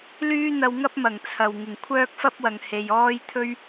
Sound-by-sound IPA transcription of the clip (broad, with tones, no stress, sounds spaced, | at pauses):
l yː˥ n̪ ɐ˧ w ŋ ɐ˥ p̚ m ɐ˨˩ ŋ t͡sʰ ɐ˨ w ŋ ɪ˨˩ ŋ kʷʰ œː˥ k̚ f ɐ˥ p̚ w ɐ˨ ŋ h e˨ j ɔː˥ j t̪ʰ ɵ˥ ɥ